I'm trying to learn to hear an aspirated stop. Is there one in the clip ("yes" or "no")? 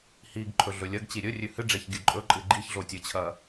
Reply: yes